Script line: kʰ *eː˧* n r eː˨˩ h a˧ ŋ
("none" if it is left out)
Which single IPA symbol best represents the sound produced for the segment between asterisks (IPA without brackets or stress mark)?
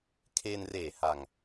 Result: eː˧